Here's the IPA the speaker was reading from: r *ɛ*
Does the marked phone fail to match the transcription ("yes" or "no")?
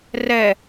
no